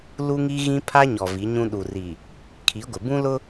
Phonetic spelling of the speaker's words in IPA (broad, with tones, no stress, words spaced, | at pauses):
lu˦ŋi˦ɣĩ˦ pʰa˦ɲɔ˨ vi˨˦ɲũ˦ ɗu˨ri˨ | kʰi˨˦ɡʷɪ˨ bũ˦lʊ˦